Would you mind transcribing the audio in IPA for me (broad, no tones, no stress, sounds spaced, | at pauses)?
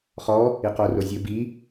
χ ɔ | i q o r o zʲ ɘ b i